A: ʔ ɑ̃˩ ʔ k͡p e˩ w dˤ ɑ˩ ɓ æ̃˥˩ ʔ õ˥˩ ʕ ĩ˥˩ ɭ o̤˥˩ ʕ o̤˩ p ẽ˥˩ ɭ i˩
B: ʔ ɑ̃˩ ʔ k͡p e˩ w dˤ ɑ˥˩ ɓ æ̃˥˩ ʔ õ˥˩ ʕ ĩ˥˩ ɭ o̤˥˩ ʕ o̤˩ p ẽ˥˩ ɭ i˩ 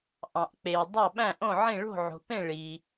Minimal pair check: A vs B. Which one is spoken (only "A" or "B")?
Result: B